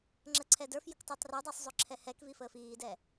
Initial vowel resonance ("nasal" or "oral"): oral